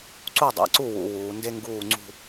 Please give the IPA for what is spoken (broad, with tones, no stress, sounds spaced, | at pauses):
ǀ u˥˩ dˤ æ̰˩˧ ǀ u˥˩ w ṵ˩˧ w uː˩˧ n d e˥ ŋ ɡ uː˥˩ ŋ͡ǀ ṳ˥˧